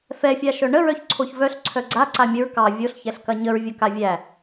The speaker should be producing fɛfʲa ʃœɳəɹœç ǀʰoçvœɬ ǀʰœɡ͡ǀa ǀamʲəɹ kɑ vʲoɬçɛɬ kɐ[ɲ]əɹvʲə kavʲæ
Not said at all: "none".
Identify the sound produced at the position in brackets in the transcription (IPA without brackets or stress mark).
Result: ɲ